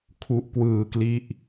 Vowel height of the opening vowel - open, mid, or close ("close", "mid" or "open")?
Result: close